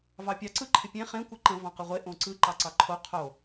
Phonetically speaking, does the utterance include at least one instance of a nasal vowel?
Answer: yes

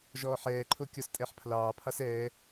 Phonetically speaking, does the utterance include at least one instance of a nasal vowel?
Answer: no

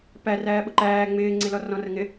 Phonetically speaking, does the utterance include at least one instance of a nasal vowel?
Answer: yes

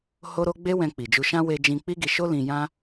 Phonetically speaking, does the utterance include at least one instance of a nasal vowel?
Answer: yes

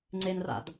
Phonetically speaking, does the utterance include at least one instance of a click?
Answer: yes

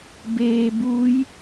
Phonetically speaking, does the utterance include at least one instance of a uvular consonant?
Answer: no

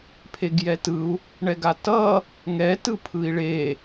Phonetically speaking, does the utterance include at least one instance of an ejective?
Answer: no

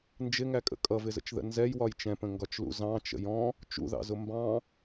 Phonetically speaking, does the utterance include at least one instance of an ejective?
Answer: yes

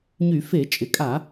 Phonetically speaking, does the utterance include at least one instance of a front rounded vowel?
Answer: yes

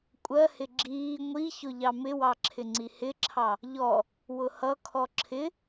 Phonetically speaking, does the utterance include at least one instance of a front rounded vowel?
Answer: no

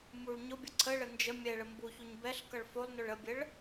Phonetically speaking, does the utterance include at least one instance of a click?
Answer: yes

